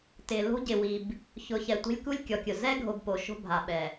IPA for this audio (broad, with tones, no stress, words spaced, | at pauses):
tɪ˨ lo̤˦ɟɪ˨wi˨b | çʊ˨çɛ˨tʷe̤˦lʲ ku˦lʲkʲɔ˨kʲʊ˨ zɛ˦ɡʱo˨b po˨˦ʃo̤˦bʱa˨ ɓɛ˨